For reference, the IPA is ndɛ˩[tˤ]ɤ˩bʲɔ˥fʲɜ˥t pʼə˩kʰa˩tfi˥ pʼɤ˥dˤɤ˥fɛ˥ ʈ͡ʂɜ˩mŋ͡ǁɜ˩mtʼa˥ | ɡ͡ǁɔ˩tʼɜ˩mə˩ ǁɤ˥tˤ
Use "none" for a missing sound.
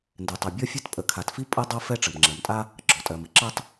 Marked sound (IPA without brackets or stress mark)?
tˤ